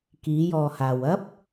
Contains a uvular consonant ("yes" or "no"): no